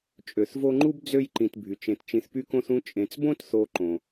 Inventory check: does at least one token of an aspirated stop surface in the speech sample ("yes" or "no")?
no